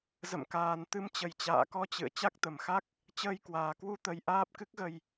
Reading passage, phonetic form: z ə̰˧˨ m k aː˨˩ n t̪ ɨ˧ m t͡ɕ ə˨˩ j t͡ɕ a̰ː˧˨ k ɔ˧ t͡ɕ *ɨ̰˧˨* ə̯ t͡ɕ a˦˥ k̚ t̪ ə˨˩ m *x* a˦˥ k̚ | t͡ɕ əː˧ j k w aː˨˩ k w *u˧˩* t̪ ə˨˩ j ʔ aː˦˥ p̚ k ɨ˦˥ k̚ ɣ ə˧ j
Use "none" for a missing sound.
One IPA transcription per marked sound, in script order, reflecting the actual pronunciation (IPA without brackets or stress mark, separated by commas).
ɨ̰˧˨, x, u˧